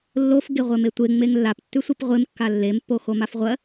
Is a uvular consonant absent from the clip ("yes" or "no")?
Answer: no